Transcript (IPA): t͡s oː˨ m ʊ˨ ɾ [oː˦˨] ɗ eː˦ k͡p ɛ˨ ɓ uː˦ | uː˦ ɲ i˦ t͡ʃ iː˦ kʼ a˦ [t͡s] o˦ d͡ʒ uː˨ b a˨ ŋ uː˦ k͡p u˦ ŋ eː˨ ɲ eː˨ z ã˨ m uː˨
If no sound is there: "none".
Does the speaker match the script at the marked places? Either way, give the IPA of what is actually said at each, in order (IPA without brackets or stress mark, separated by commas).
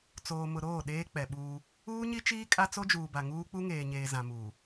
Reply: oː˦˨, t͡s